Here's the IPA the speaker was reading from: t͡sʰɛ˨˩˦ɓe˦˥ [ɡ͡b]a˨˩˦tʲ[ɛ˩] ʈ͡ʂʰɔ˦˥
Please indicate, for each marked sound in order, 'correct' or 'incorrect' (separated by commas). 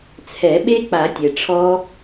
incorrect, correct